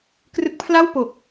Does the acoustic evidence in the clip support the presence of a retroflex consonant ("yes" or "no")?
no